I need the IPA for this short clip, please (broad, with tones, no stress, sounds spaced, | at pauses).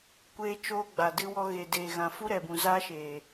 kʷ eː˦ t͡ʃ oː˦ ɡ͡b a˨ d ɨ˧ w ɔ˧ ɣ e˨ d eː˨ ɣ ã˨ f u˦ ɾ ɛ˨ b ũ˨ z a˦ ʃ eː˨